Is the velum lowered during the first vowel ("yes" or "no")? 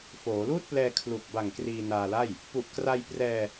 no